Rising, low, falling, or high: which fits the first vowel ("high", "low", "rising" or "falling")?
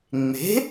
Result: rising